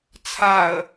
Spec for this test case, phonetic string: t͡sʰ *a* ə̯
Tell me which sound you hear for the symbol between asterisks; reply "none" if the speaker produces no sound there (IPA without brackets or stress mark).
a